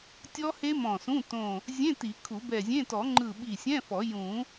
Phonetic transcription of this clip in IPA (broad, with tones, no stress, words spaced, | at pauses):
tʲɔ˦˥he˦˥ mɔ̃˧˩sũ˧˥˧ tõ˧˩ | zʲẽ˧˥˧ ti˨˩˦kʰu˨˩˦bɛ˧˩zʲẽ˧˥˧ tɔ˨˩˦ŋ͡ǃɯ˧˩ ɓi˧˩sʲɛ̃˧˥˧fɔ˨˩˦ jũ˨˩˦